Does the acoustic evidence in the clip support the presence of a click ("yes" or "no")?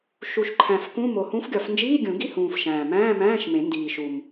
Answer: yes